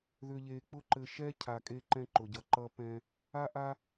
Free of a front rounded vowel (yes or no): no